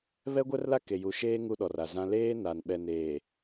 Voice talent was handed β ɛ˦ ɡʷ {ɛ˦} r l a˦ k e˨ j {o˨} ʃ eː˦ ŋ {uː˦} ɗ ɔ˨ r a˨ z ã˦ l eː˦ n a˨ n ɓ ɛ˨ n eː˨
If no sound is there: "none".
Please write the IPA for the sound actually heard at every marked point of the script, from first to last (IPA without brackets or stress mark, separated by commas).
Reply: ɛ˦, u˨, u˦